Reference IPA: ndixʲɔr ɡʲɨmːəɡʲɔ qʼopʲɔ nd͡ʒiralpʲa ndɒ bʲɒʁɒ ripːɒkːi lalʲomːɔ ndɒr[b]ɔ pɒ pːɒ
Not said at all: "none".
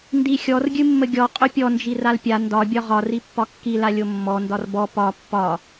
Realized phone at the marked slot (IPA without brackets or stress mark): b